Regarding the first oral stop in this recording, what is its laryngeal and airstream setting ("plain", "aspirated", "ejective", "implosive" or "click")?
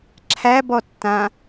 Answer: click